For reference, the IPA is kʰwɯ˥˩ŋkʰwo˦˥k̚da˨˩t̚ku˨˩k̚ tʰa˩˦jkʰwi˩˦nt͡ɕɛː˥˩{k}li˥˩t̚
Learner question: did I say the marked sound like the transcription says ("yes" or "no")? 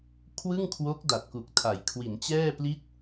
no